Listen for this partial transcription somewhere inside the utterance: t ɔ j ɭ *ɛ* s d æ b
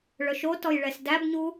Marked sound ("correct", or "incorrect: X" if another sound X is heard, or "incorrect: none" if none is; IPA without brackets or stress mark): correct